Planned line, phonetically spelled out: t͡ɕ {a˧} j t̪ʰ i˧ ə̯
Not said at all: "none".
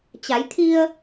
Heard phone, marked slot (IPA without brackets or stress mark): a˩˧